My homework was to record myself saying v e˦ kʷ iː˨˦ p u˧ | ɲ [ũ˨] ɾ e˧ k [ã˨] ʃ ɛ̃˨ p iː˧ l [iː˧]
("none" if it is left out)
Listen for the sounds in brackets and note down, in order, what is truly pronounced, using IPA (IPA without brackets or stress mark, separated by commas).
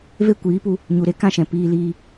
u˨, ã˦, iː˧